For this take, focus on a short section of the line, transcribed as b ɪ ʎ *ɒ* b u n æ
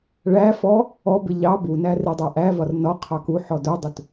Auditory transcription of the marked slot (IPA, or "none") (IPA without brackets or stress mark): ɑ